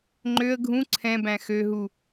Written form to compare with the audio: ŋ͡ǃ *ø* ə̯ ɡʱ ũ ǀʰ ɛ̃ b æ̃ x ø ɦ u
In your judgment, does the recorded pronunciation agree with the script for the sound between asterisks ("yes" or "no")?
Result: yes